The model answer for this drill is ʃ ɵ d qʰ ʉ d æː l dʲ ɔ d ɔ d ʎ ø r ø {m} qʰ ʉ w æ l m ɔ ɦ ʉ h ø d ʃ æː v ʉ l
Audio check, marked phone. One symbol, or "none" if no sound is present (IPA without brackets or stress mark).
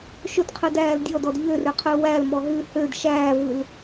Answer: none